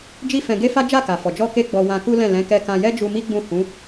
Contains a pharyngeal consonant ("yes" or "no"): no